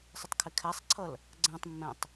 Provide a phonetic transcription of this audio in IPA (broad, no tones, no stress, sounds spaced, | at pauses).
sˤ ɪ tˤ kʰ ɪ kʰ æ sˤ ǀʰ ʌ l | ɡ͡ǀ ɛ̃ tˤ mː ɛ̃ tˤ